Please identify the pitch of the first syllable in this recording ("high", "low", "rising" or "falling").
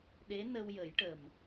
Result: rising